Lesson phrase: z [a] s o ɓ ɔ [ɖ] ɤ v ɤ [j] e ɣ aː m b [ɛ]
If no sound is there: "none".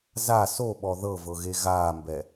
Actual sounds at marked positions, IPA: a, ð, ɣ, ɛ

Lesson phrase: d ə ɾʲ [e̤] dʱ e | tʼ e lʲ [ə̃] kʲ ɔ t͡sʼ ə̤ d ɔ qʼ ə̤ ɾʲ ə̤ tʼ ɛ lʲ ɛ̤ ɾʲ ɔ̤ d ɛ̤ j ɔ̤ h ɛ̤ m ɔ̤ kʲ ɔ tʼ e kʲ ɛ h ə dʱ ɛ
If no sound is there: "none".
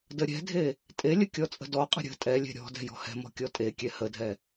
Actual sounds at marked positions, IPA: ɛ̤, ə

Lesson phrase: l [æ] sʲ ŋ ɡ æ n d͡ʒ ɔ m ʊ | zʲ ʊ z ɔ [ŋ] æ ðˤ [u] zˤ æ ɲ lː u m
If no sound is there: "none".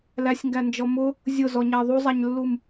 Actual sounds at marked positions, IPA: æ, ɲ, u

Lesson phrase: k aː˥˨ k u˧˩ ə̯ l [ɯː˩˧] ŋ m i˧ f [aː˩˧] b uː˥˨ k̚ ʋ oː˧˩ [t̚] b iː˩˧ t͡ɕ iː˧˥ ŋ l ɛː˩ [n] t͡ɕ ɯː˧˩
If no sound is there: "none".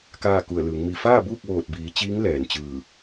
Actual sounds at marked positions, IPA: ɯː˩˧, aː˥˨, t̚, n

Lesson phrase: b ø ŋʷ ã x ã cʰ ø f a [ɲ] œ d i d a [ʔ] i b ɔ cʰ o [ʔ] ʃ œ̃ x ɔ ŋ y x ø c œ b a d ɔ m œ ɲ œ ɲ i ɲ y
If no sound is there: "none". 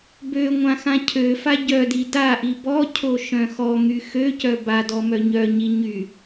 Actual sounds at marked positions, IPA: ɟ, ʔ, none

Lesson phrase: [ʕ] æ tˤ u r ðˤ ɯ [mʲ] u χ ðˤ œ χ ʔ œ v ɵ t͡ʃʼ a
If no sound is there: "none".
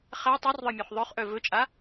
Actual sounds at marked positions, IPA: χ, mʲ

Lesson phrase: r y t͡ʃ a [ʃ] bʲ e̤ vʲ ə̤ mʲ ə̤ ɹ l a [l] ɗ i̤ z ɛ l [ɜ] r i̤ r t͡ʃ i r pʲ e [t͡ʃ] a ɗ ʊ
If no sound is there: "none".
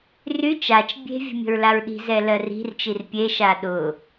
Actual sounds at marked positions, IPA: t͡ʃ, ɹ, ɜ, ʃ

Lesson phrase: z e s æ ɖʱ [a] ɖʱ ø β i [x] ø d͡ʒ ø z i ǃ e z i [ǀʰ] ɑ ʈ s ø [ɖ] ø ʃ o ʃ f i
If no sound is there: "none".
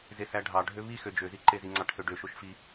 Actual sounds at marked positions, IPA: ɑ, x, ŋ͡ǀ, ɖ

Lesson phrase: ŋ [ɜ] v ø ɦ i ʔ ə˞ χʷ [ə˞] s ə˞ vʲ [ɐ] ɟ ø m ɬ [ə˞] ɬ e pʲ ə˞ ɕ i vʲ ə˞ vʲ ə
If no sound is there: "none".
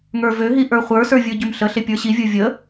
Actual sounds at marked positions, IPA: ə˞, ə˞, ə˞, ə

